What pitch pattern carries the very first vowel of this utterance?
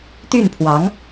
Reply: falling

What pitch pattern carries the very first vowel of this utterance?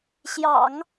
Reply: low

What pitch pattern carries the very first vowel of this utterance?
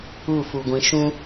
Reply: falling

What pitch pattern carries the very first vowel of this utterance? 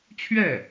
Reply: falling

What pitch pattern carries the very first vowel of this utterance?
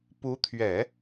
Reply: rising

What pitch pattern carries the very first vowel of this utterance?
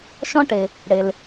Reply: high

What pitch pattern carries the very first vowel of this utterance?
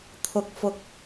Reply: low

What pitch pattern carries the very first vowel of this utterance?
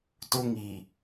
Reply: high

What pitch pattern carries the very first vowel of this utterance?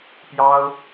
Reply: high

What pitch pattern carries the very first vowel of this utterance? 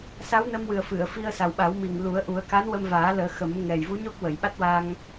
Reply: rising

